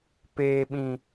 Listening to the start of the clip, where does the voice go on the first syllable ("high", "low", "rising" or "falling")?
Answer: low